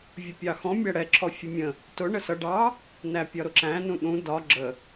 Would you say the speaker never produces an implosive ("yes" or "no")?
no